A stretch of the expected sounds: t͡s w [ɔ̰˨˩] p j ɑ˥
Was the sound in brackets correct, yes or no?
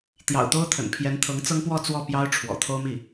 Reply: no